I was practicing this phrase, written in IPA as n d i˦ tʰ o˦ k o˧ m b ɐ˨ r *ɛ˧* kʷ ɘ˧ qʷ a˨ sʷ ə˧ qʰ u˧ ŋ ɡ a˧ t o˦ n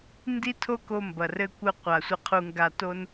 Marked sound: incorrect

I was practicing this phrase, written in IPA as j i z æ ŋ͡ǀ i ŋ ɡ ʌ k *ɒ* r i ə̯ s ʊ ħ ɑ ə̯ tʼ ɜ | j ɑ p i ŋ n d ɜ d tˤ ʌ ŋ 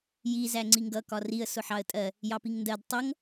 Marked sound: correct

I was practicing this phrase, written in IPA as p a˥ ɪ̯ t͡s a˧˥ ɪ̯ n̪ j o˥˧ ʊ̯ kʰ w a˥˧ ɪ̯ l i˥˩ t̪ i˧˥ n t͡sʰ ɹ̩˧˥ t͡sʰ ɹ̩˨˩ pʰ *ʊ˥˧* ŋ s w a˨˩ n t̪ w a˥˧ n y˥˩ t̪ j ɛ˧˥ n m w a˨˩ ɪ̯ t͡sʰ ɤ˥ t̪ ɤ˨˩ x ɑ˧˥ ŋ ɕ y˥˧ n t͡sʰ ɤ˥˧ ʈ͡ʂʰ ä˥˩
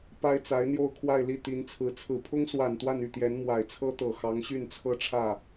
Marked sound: incorrect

